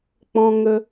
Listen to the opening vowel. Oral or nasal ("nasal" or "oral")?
nasal